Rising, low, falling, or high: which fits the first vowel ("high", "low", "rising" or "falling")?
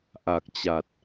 low